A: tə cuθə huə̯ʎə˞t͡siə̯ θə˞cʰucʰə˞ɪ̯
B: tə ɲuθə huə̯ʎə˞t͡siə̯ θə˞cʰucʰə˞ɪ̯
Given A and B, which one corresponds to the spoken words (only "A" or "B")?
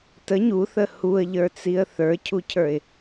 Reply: B